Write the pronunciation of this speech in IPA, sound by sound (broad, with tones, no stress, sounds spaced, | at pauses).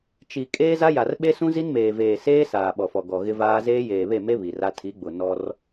t͡ʃ i˨ kʼ eː˦ z a˦ j a˨ r ɓ e˦ s ũ˦ z i˦ n m eː˨ v eː˨ s eː˦ s aː˨ ɓ ɔ˨ f ɔ˨ ɡ ɔ˨ ɣ ɪ˦ v aː˦ z eː˦ j eː˨ β e˦˨ m e˦ β i˨ r a˦ tʰ i˨˦ ɡ͡b ʊ˨ n ɔ˦ r